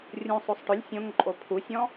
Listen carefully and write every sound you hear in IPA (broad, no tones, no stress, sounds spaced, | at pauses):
rʲ ũ sˤ o sˤ ʈ ʊ lʲ sʲ õ ŋ ǃʼ o pʰ u sʲ ɔ̃